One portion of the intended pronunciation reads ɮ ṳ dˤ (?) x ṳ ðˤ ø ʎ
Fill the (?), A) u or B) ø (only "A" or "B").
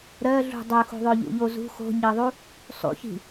B